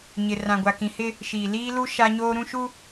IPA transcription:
ɲ ɪ˨ r ã˨ ɡʷ a˨ k ĩ˨ h ɪ˦ | ʃ iː˨ l iː˦ l u˦ ʃ a˦ ɲ oː˦ ɾ ũ˦ ʃ u˦

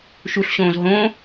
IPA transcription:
ʃ u ɬ ɕ õː z ɦ õ

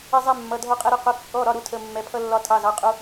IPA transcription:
ɪ˧ zˤ ɛ˧ mː ʌ˩˧˩ dʱ ɔ˧ qʼ ɛ˧ ɾ ʊ˧ q ʊ˩˧˩ kː ɔ˩˧˩ ɾ ɒ˩˧˩ ɾ u˧ tʰ ə˩˧˩ mː ɛ˩˧˩ pʰ ʌ˧ lː ɒ˧ tʰ ɑ˩˧˩ z ɑ˩˧˩ qʼ u˧

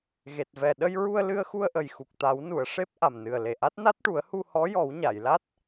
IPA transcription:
ɣ e˨˩ t̚ v ɛ˨˩ ɗ ə˧ j ɹ u˧ ə̯ l ɨ˧ ə̯ x u˧ ə̯ ʔ ə˨˩ j x u˨˩ k̚ t̪ a˨˩˦ w n u˨˩˨ ə̯ ʂ e˦˥ p̚ ʔ a˨˩ m n ɨ˨˩ ə̯ l e˨˩ ʔ a˦˥ t̚ n a˦˥ t̚ ʈ u˨˩˦ ə̯ h u˧ h ɔ˧˥ j ɔ˨˩˦ w ɲ a˨˩˨ j l a˦˥ t̚

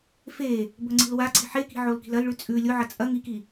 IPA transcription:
f e | b ɵ ŋ͡ǀ i̤ l w a ǀ i̤ ħ e k i̤ ʕ o l k i̤ l ɐ l ɭ ʉ t͡sʼ ʉ lʲ o ʕ ɐ t͡sʼ ɐ ŋ i k i

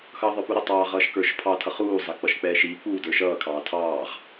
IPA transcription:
x ʌː ðˤ ə˞ p u ɾ ə tˤ ɑː ʁ ʌː ʃ k ə˞ ʃ pʰ ɑ tʰ ʌ χ uː zˤ æ k͡p ʌ ʃ k͡p ɛː ʃ iː k͡p uː d ə˞ ʃ ʌː kʰ ɑː tʰ ɑː ʁ

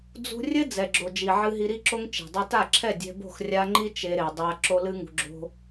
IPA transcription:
d͡z ṳ˧ rʲ ɘ˦ d͡z ɛ˨ ɡ͡ǁ o˨ d͡ʒ i˨ ʕ ɨ˧ ɦ i˧ ɾ i˦ ǁ o˦ ŋ t͡ʃ e̤˨ dˤ ɐ˦ t a˦˨ ǁʰ ɛ˦˨ dʲ ɛ̤˧ b o̤˦˨ x rʲ a˧ ŋ͡ǃ i˦ t͡ʃ e˧ ɾ e˨ dˤ a˧ ǁ o˦ l ɨ˦ ŋ ṳ˧ ɡ͡ǁ o̤˦

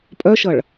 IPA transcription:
pʼ œ ʃ ʌ ɭ

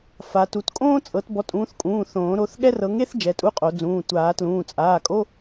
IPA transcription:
f a˨˦ t u˨˦ t kʼ õː˥ t͡sʼ ɤ˨˦ t b ɔ˨˦ tʼ ũː˨˦ θ kʼ ũː˩˧˩ θ õː˨˩˦ ɾ o˩˧˩ θ ɠ ɛ˥ r ɤ˨˦ ŋ e˥ θ d͡ʒ ɛ˩˧˩ tʼ u˧˥˧ qʼ o˨˩˦ d͡z ũː˩˧˩ tʷ aː˨˩˦ t l ũː˩˧˩ t͡sʼ aː˩˧˩ kʼ o˧˥˧

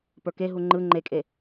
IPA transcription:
p ə˞ k e ɦ u ŋ͡ǃ ɯ ŋ͡ǃ e kʼ e

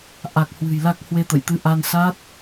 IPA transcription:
ʔ a˨˩ k̚ h w ɨ̤˨˩ j l a˦˥ k̚ h w e˧ t̪ ə̰˧˨ j t̪ ɨ˧ ʔ a˧ n s aː˦˥ t̚

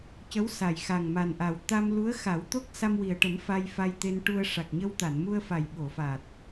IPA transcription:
c ə˧˥ w s a˨˩ j x a˨˩ ŋ m a˨˩ n ʔ a˨˩ w t̪ a˧ m l u˧˥ ə̯ x a˨˩˦ w t̪ o˦˥ k̚ s a˧ m w i˨˩ ə̯ ʈ ə˨˩˦ m f a˧ j f a˧ j t̪ e˧ n ʈ u˧ ə̯ ʂ a˨˩ k̚ ɲ ə˧ w t̪ a˨˩˨ n m u˧ ə̯ f a˨˩ j ɓ o˨˩˨ f aː˨˩ t̚

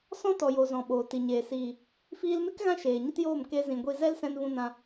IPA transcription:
s ɔ̃˦ t ɔ˨ j o˨ z ɔ̃˨ ɓ oː˨ t i˨ ɲ eː˨ s iː˨ | f iː˧ l m e˦ k ɣ ã˦ ʃ eː˨ ɲ ə˦ t j oː˦˨ m k e˧ z ĩ˨ ɡʷ i˧ z ɛ˦ l s ɛ̃˧ n v ũ˧ n ã˧

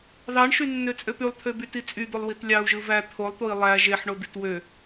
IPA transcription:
ð ɑ ɳ ʃ y nː ø t͡sʼ ø p y lˠ t̪ʰ ø b y t i t͡sʼ y d̪ o lˠ w i t lʲ ɑ u̯ ʒ ɯ v æ t̪ʰ o lˠ t̪ o i̯ lˠ æ ʒ e ħ ɳ o d̪ i t w ø

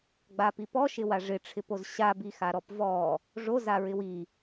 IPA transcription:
ɡ͡b a p i p ɔ ʃ ɪ w a ʐ ɪ ʈ͡ʂʰ ɪ p o z ɕ a b i x a ɾ ɔ p v ɔ | ʐ o z a ɹ ɪ w i

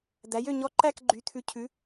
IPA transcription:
d̪ æ˩˥ j ø˥˨ ɲ ɔ˧˥ ǃ æ˥˨ k ɡ͡ǃ y˩˥ t̪ʰ ʉ˩˥ cʰ ʉ˩˥

